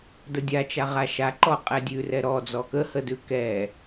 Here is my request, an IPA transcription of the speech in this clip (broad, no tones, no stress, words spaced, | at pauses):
dədʲa t͡ʃaʁaʃaǃɔ qʼɛdʲʉrɛ ɾɔ d͡zɔkəhədʉ kɛ